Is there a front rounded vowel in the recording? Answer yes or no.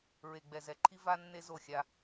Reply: no